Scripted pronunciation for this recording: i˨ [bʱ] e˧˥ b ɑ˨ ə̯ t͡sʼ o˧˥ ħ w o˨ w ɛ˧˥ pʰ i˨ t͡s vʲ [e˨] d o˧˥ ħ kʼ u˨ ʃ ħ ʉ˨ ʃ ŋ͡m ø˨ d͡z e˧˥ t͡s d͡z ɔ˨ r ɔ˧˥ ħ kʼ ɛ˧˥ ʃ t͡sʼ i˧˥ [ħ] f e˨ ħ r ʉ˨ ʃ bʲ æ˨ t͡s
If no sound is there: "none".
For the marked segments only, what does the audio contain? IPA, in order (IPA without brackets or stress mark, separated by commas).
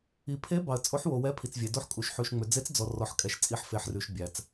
pʰ, e˨, ħ